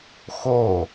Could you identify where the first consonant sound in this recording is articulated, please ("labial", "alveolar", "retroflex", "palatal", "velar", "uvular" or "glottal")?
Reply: velar